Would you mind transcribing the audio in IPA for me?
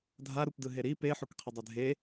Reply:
dʱaɾupdɯ ɦeɾi peħuk qʰedˤɯdʱe

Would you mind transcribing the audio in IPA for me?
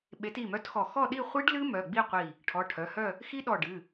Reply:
ɓe˨˥ti˩˧˩mœ˦˥txɔ˧˩ xɔ˥˨ɗi˥˨ χʷi˦˥ɖlɨ˦˥ mœ˩˧˩ɡ͡bi˥˨qʷi˧˩ | ʈʰɔ˩˧˩ʈʰœ˩˧˩hœ˥˨ | xi˦˥ɗɔ˧˩ɖɨ˩˧˩

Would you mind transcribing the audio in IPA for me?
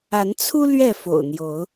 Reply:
a˨˦nt͡sʰu˦ lɥɛ˥˨fo̰˨˩ʊ̯n̪jo˨˦ʊ̯

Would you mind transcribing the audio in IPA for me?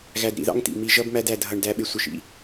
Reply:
ɣæ˨dɾḭ˨ðɑ̰˦ŋtḭ˨ mi˨ʒʌ˦bmæ˦d æ˨dʱʌ˨ɳ dæ˦ɓɪ˦sʷɪ˦ʃḭ˦

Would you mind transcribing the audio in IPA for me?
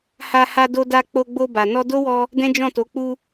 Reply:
ha˧ha˧do˧da˧ k͡po˧ɡ͡bo˧ba˨ nɔ˧do˦wɔ˧ | dɛ̃˦d͡ʒɔ̃˦˨to˨˦ k͡pu˧

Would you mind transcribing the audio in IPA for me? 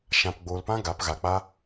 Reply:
ʃã˧pɡ͡boː˧lpã˦ ɡa˨˦p ɣa˧k͡pa˦

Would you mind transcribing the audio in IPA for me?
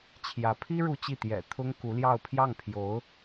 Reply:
t͡ɕʰjä˧˥ pʰi˥ ɻu˥t͡ɕi˥˩ t̪jɛ̰˨˩ t̪ʰʊ˥ŋku˧˥ljɑ˥˧ʊ̯ pʰjɑ˥˩ŋpʰjo˧˥ʊ̯

